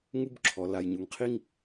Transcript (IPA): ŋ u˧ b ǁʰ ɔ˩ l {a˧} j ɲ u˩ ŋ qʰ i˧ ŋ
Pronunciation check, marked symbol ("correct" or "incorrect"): incorrect